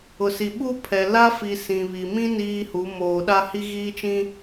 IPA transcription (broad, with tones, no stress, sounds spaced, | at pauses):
ʊ˨ s i˨ ɓ u˦ pʰ ɛ˨ l a˦ f i˨ s ĩ˨ β i˨ m ĩ˦ n iː˦ h u˨˦ m oː˨ ɗ a˦ h i˦ ɣ iː˦ t͡ʃ ĩ˦